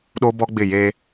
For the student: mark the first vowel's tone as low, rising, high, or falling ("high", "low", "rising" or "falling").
high